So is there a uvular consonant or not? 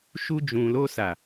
no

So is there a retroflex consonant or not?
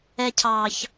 no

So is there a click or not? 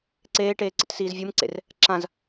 yes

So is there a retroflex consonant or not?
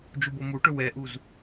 yes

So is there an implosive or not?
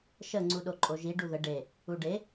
yes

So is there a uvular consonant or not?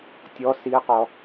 yes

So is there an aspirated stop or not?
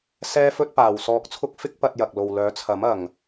yes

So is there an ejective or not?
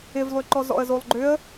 no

